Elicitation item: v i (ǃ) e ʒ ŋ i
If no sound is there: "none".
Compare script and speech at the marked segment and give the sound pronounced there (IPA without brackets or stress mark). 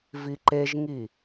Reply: ǃ